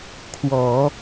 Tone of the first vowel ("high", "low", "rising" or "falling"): low